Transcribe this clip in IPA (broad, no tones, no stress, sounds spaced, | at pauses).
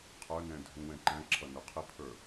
qʰ ə˞ n ɛ̃ dʱ ũ w ɛ̃ ǃ æ̃ ǁʰ ʌ n ʊ qʰ ɪ pʰ ə˞